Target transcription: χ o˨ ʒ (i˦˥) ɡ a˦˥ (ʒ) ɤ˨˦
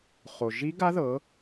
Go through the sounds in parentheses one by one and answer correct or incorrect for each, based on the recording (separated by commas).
correct, incorrect